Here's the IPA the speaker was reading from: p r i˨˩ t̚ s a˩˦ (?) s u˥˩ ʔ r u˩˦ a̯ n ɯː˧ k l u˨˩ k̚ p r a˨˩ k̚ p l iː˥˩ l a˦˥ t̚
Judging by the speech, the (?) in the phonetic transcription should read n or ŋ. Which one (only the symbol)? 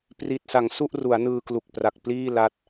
ŋ